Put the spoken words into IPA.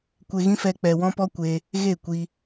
kʷ e˧ ɣ ĩ˦ f ɛ˧ k͡p ɛ˧ w ɔ̃˦ p ɔ˦ kʷ e˧ | ɣ e˦˨ kʷ i˧

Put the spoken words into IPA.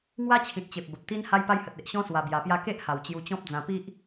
ŋ w a˦ t͡ɕʰ ĩ˨ t̚ t͡ɕ e˨ p̚ b ə˨ p̚ t̪ i˦ n h a˧ j p a˧ j h ə˨ t̚ e˨ ʔ ɕ ɔ̃˦ s w a˧ b j a˧ p j a˦ k e˦ ʔ h a˨˩ w t͡ɕ j u˧ t͡ɕ ɔ̃˦ p̚ d͡z ã˧ p i˦ ʔ

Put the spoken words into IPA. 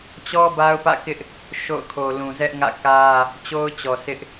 t͡ɕ ɔ˦ b a˦ ʊ̯ p ä̰˦˨ k ɪ˦ ʔ | ʃ o̰˦˨ ʊ̯ kʰ o˨ l ũ˨ z ɛ˦ ʔ ŋ ä̰˦˨ k ä˦ | t͡ɕ o˦ ʊ̯ t͡ɕ ɔ˨ s ɪ˦ ʔ

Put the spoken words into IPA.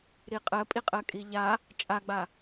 ɾ i qʼ ɜ pʼ i qʼ ɜ kʼ i ʎ a | t͡ʃʼ a ɡ͡b a

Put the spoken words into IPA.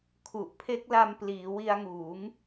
kʰ u˨˩ ʔ pʰ e˦˥ k̚ l a˧ m p l iː˩˦ w i˧ a̯ ŋ uː˩˦ ŋ

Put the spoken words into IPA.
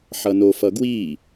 ħ ʌ n o f ʌ ɡ w i

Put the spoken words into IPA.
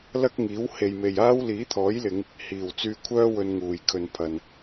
l ɐ˥ k̚ ŋ iː˨˥ w h e˨ j m e˨ j aː˥ w l iː˨˥ t̪ʰ ɔː˨˥ j l ɪ˨˧ ŋ | h iː˨˩ w t͡s yː˧ kʷʰ œː˥ w ɵ˧ n ŋ uː˨˩ j kʰ ɵ˨ n pʰ ɐ˨ n

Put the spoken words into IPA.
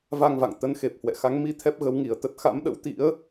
v a˧ ŋ v a̰˧˨ ŋ t̪ ə˨˦ n x e˨˩ p̚ h w ɛ̰˧˨ x a˨˦ ŋ m i˧ t̪ʰ ɛ˦˥ p̚ ɣ ə˨˦ w ŋ i˨˩ ə̯ t̪ ə˦˥ t̚ x a̰˧˥ m ɗ ə̰˧˥ w t̪ ḭ˧˥ ə̯

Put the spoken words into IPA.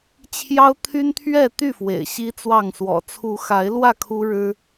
t͡ɕʰ j ɑ˦ ʊ̯ t̪ʰ y˦ n t̪ʰ ɥ ɛ˥˨ t̪ y˥˨ f w ḛ˨˩ ɪ̯ ɕ i˦ t͡s w ɑ˥˨ ŋ s w ɔ̰˨˩ t͡sʰ u˨˦ x a˨˦ ɪ̯ l w ä˥˨ kʰ u˦ ɻ ɻ̩˦

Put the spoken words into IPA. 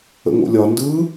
ə̰ ŋ o̰ lʲ ɒ n d ɯ

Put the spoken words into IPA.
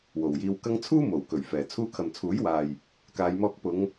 w o˨ w j iː˧ w k ɐ˥ ŋ t͡sʰ uː˥ m o˨˩ w k ɵ˨˩ ɥ f ɛː˨ t͡sʰ uː˧ kʰ ɐ˨ m t͡sʰ uː˨˥ j w aː˨ j | k aː˨˧ j m ɔː˧ k̚ p ʊ˨˧ ŋ

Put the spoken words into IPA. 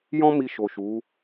j ɔ̃˦ m i˧ ʃ o˨ ʃ u˨˦

